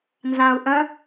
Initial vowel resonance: nasal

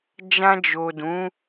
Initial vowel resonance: nasal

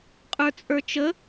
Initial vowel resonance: oral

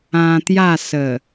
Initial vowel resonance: nasal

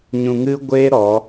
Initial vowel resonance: nasal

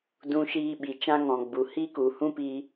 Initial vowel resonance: nasal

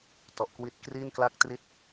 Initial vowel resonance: oral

